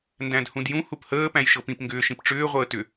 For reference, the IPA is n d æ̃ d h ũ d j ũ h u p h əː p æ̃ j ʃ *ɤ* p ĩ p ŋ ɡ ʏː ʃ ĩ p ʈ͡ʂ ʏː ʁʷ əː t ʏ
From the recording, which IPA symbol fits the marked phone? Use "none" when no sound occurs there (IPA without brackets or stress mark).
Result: ɤ